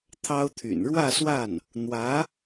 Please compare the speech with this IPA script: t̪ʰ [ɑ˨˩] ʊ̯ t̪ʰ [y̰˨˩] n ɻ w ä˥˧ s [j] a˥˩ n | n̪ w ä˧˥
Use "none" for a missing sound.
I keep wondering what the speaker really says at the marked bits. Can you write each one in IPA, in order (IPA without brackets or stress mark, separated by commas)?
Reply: ɑ˥, y̰˨˩, w